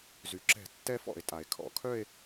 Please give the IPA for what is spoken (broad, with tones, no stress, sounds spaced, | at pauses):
z y˩ ǁ ɛ̤˧˩˧ tː ɛ˥˧ f ɔ̰˧˩˧ e̯ tʼ a˩ e̯ kʰ ɔ̰˧˩˧ kʰ œ˥˧ e̯